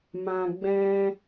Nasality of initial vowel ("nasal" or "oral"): nasal